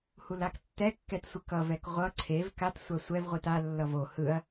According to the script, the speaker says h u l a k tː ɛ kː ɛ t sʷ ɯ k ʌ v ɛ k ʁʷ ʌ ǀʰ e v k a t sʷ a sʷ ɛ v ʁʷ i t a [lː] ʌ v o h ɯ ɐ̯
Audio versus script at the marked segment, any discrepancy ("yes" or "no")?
no